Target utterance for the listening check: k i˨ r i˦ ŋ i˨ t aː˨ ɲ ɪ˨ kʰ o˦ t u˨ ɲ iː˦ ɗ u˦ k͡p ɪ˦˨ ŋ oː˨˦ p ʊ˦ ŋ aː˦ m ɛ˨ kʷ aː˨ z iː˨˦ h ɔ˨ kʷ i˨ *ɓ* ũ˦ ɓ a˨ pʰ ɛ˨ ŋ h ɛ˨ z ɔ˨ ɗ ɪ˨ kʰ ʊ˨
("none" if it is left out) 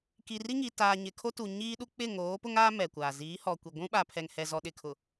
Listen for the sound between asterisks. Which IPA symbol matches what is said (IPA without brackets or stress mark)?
ɡʷ